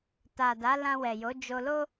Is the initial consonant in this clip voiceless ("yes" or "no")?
yes